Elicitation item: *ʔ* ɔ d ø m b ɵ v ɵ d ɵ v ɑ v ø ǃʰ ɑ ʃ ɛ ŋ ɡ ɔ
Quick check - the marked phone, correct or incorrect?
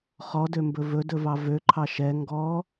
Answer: incorrect